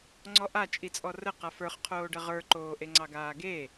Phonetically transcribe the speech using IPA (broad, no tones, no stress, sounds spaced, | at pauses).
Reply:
ŋ͡ǀ ɔ ʔ a t͡ʃʼ i t͡sʼ ɔ r ə q a f ə˞ χ qʰ oː ɖ ə ʁ ə˞ ǃ oː ʔ e ŋ͡ǀ ɑ ɡ aː ɡ e